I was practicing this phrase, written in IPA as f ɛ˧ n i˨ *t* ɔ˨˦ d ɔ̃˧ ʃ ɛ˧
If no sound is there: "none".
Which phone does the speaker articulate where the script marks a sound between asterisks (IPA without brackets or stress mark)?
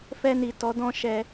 t